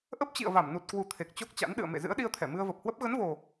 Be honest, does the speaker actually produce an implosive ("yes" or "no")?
yes